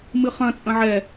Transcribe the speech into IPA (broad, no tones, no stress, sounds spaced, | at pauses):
m ɨ χ ɐ̃ t͡sʼ ɐ̃ ʕ ɛ